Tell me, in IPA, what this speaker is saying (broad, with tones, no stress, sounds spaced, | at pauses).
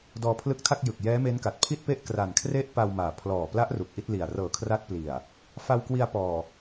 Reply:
d ɔː˧ pʰ l ɯ˦˥ k̚ tʰ a˥˩ k̚ j ɯ˨˩ k̚ j ɛː˦˥ m e˦˥ n k a˨˩ t̚ pʰ i˥˩ t̚ p e˥˩ ʔ k r a˨˩ n kʰ r e˦˥ ʔ p a˧ w m aː˨˩ pʰ l ɔː˨˩ p l a˦˥ ʔ r u˨˩ k̚ ʔ i˥˩ t̚ l i˨˩ a̯ r ɤː˨˩ kʰ r a˦˥ t̚ p l i˨˩ a̯ | f a˧ w k w i˧ a̯ p ɔː˨˩